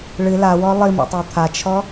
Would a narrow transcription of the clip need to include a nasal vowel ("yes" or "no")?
no